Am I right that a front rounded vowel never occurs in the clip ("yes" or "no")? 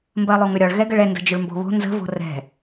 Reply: no